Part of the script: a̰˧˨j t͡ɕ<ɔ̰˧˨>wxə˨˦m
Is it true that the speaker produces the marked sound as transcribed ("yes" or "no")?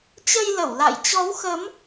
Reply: no